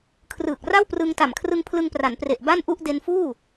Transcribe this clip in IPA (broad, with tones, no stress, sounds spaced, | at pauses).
kʰ r ɯː˨˩ k̚ r a˥˩ w p r ɯ˧ ŋ t a˨˩ m kʰ r ɯ˧ ŋ pʰ l ɯ˧ ŋ p r a˩˦ n p r e˨˩ ʔ b a˥˩ n ʔ u˥˩ ʔ d e˧ n f uː˥˩